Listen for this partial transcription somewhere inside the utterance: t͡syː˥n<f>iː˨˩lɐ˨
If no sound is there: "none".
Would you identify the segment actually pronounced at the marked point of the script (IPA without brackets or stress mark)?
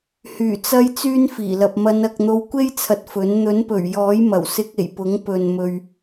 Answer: f